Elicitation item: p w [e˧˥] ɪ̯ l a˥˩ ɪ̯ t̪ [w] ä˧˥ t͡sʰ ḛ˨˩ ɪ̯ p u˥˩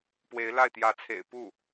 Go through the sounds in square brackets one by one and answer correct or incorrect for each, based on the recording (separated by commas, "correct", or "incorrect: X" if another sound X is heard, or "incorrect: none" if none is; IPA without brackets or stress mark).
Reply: correct, incorrect: j